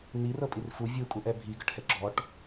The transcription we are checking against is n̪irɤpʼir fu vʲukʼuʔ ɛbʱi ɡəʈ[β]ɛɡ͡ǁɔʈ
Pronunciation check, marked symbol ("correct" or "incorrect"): incorrect